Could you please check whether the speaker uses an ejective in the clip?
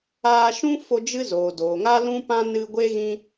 no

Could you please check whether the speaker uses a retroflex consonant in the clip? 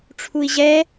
yes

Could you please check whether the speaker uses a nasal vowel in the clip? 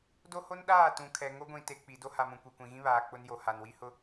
yes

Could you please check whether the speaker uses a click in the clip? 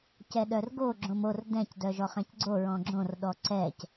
yes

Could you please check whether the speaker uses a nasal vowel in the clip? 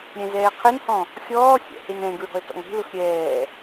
yes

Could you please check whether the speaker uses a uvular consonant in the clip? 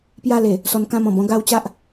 no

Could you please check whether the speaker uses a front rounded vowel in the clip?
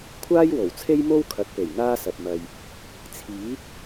no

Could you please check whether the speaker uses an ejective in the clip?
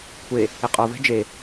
yes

